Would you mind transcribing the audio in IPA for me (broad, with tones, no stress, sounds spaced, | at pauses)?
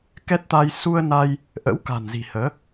k ɛ˦˥ t̚ t̪ a˧ j s u˧ ə̯ n a˧ j | ʔ ə̰˧˥ w k a̤˨˩ n z i̤˨˩ h əː˨˦